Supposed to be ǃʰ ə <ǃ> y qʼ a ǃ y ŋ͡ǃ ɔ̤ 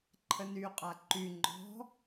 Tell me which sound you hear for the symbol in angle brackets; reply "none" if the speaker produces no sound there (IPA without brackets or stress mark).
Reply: n